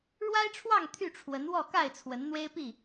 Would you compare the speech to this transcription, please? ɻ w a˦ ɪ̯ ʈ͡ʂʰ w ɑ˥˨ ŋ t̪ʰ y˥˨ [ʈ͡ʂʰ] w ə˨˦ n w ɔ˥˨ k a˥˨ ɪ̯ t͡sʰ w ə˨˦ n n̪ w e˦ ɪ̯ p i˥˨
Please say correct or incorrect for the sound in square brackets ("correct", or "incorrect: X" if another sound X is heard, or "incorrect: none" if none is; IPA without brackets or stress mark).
correct